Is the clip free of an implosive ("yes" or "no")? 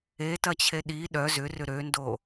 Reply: no